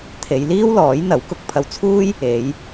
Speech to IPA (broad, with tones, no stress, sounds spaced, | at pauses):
t̪ʰ e˨˧ j l iː˥ w l ɔː˨˥ j n̪ ɐ˨˥ w k ʊ˧ k̚ pʰ ɐ˧ w t͡sʰ uː˥ j | e˨˧ j